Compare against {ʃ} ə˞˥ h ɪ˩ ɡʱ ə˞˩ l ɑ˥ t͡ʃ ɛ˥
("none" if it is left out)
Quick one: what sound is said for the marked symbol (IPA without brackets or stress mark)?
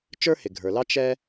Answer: t͡ʃ